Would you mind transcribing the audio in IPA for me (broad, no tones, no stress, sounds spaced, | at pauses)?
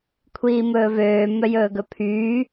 kʷʰ iː m ɵː v øː m œ j ɵː ɡ ɵ pʰ yː